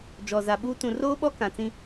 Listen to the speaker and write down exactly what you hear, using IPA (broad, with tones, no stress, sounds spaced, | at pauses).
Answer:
d͡ʒ ɔ˨ z a˨ ɓ u˦ t ũ˨ r oː˦ ɓ ɔ˦ k ã˨ t͡s ĩ˦